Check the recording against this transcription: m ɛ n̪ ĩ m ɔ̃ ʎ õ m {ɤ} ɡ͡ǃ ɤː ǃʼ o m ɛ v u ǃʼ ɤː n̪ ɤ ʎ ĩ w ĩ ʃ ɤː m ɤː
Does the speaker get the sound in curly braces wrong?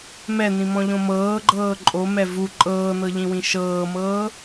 yes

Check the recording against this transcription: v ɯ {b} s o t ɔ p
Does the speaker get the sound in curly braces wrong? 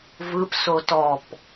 yes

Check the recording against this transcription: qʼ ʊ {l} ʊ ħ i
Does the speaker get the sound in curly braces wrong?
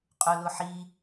no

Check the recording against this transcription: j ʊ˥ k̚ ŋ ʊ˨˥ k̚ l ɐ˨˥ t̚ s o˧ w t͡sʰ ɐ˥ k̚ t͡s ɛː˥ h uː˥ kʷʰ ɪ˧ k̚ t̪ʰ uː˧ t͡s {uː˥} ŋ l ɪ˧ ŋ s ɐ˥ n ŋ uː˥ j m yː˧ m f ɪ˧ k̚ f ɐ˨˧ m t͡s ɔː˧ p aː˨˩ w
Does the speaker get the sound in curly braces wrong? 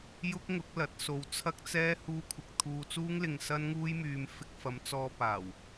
no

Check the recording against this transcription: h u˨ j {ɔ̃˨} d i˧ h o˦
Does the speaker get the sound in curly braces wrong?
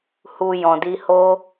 no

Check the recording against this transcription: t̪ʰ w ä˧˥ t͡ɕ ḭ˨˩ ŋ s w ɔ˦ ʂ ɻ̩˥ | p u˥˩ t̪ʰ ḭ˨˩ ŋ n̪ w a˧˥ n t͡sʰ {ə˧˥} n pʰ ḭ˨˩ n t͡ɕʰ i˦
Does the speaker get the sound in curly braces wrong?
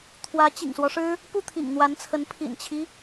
no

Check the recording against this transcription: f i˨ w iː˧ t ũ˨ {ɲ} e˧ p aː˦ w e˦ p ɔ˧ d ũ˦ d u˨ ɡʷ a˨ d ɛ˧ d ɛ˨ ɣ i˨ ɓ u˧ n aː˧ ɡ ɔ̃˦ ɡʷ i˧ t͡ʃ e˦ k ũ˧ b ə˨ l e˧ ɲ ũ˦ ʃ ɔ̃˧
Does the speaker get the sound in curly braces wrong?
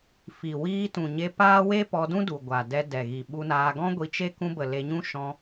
no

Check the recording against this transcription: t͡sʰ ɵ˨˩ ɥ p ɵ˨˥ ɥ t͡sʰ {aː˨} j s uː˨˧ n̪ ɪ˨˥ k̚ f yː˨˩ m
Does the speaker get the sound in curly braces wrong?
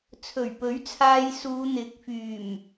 yes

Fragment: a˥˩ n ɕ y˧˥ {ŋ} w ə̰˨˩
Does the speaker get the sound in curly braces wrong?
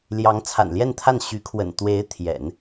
yes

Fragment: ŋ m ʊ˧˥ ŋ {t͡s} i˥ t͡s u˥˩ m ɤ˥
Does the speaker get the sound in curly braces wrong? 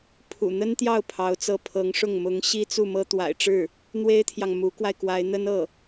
yes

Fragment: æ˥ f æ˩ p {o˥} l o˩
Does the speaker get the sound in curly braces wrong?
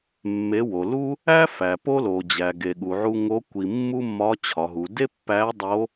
no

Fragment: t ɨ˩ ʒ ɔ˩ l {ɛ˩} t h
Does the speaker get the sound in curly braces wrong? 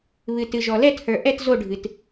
yes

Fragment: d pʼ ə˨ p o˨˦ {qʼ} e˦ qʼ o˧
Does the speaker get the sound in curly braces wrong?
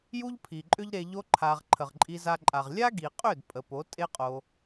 yes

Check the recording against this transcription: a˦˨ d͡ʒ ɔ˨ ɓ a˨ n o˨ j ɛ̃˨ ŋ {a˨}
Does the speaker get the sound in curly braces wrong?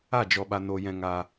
no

